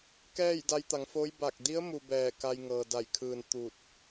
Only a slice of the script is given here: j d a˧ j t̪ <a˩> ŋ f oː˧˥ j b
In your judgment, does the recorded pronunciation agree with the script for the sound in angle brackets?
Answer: no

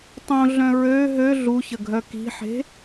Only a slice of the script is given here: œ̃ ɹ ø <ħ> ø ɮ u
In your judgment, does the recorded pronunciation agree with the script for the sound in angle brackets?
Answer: no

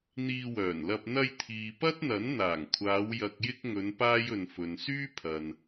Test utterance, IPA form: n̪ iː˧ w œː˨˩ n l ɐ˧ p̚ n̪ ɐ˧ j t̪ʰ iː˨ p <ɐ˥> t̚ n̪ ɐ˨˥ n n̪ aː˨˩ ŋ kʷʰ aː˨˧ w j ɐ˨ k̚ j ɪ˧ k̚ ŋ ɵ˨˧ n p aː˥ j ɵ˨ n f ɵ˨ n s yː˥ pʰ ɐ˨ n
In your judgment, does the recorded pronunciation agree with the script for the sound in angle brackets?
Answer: yes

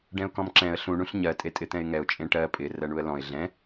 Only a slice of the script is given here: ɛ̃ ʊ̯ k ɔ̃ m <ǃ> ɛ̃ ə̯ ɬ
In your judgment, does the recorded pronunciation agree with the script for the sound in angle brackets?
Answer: no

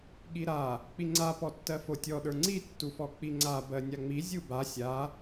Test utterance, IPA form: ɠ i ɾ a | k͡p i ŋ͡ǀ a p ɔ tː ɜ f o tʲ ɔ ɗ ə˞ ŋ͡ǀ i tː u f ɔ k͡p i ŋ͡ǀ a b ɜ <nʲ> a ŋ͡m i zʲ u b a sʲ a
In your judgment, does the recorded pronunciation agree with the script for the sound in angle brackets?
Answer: yes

